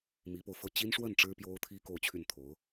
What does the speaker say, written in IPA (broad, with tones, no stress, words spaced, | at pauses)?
mi˧˥po˧ʊ̯fɤ˥˩ t͡ɕi˥n ʂwə˥˩n ʈ͡ʂɻ̩˥pjo˥ʊ̯t̪ʰi˥ ko˥˧ʊ̯t͡ɕʰy˥˩nt̪ʰo˧˥ʊ̯